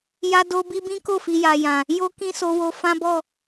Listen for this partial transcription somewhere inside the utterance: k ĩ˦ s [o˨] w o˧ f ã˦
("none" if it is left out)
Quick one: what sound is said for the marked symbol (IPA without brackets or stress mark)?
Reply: o˧